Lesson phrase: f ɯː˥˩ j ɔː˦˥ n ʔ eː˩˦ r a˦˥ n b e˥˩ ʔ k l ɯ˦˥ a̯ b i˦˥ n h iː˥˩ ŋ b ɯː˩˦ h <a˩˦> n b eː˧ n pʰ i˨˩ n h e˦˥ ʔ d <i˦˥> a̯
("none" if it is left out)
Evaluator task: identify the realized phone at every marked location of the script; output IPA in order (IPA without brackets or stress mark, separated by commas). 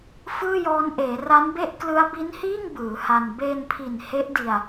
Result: a˧, i˧